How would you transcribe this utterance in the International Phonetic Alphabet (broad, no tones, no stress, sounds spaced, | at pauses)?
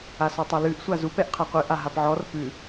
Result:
a s ɔ tˤ a l ʉ ʔ sʷ a z u p ɛ ʔ qʰ a qʷ ɨ ʔ a ɦ a p ʕ ɔ r p ʉ